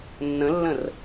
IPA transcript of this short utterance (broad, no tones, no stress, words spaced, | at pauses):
nːə̃lːə̃r